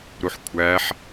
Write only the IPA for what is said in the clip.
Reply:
ɾuħkʷʰæħ

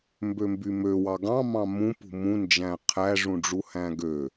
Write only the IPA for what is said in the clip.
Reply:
mbømbymøwɑ ɡɑ̃mɑ̃ mũpṳ mũnd͡ʒæ̃ qʰæʐũɖ͡ʐu hæ̃ɡø

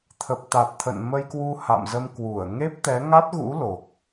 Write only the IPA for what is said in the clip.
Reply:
t̪ʰə˨˩p̚t̪a˨˩t̚ t̪ʰə̰˧˨nmə˧jkwu˧ ha̰˧˨mzə˧mkwu˧˩ə̯ ŋe˦˥p̚t̪ɛ˨˦ŋa˦˥t̚ɣṵ˧˥ lo˨˩k̚

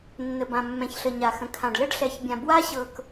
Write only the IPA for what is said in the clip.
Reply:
nːə˨bã˨ mːɛ̃˨çɬə˨ ɲa˨xə̃˨kʰã˨ɖ lə˦ɖɬɛ˨çbʲã˨ bwa˦ɕɤ˨k

